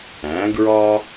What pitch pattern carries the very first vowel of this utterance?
rising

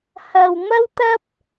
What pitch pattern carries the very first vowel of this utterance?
low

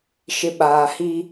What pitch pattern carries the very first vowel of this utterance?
low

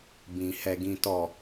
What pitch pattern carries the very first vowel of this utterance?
low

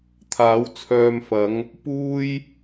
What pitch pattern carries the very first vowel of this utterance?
rising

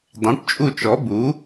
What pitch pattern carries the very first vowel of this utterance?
rising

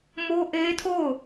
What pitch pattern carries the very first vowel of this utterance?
high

